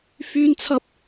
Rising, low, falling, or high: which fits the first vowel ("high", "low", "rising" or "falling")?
high